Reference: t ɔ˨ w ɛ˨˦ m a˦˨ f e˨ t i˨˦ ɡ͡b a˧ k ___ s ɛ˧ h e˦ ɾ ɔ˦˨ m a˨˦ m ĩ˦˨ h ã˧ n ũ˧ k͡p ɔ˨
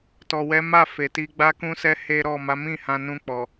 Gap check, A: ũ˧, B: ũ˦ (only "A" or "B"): A